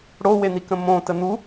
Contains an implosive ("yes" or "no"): no